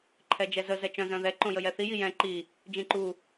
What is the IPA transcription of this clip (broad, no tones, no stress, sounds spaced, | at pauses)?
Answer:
ǃʰ ɛ d͡ʒ ɛ z ə z ɛ t͡ʃ œ̃ z œ̃ ð ɛ ǃ õ j ə j ɛ θ i j i j ɛ̃ ǃ i | d͡ʒ ĩ ǃ u